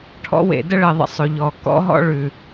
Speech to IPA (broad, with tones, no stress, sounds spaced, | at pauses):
ʈʰ ɔ̰˦ w ḛ˧ d ə˦ ɭ ɘ˧ ðˤ ə̰˧ sˤ ʉ˨ ʎ ɔ˨ k ɔ̰˦ ɦ ɔ̰˦ ɭ ʉ˨